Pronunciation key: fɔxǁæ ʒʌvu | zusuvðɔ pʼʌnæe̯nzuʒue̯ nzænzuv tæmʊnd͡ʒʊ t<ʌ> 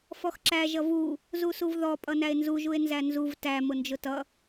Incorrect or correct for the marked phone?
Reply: correct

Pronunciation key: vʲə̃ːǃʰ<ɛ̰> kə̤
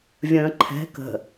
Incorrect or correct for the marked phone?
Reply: incorrect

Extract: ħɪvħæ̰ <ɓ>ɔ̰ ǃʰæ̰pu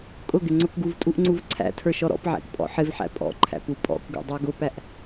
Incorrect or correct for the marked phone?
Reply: incorrect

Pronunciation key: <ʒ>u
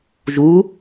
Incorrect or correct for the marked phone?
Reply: correct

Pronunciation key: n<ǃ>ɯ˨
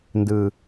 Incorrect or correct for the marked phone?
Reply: incorrect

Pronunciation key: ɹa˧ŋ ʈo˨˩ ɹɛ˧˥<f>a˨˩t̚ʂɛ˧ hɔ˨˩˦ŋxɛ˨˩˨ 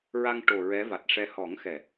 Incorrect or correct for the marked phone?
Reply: incorrect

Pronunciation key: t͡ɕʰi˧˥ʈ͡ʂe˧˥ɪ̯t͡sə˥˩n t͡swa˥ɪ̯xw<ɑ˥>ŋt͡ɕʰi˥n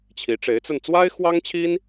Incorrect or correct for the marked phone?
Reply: correct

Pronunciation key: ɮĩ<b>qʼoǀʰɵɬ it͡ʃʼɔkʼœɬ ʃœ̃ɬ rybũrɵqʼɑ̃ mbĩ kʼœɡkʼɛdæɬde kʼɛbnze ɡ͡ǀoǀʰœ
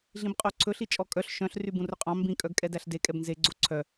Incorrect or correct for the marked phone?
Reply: correct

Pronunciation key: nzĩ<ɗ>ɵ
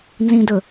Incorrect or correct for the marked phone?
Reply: incorrect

